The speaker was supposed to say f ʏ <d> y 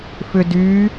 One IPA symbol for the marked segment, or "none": d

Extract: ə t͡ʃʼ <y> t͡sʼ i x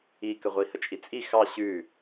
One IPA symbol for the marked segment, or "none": i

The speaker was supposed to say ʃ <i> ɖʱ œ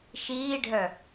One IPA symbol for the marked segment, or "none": iː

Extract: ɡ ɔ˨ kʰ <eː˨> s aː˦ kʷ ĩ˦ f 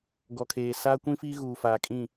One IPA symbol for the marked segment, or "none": eː˨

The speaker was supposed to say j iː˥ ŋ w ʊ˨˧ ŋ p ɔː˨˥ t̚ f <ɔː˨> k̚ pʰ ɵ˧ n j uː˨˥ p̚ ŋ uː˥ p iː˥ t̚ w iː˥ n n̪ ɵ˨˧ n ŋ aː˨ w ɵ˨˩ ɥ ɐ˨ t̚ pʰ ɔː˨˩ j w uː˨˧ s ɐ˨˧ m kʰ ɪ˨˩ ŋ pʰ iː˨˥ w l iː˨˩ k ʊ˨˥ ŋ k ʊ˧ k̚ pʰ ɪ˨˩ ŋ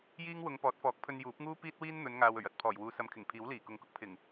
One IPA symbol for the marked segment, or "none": ɔː˨˥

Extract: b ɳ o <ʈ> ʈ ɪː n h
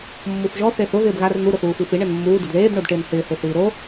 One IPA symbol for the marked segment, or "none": d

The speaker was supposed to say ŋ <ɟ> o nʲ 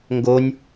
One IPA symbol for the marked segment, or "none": ɡ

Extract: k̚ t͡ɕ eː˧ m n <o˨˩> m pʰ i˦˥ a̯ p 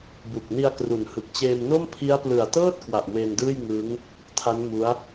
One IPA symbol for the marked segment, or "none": o˥˩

